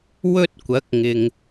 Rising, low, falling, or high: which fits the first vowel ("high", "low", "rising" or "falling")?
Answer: high